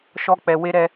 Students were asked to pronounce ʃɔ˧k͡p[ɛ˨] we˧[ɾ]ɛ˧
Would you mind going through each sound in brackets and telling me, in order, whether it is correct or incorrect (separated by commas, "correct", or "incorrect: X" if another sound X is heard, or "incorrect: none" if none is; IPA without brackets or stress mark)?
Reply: correct, correct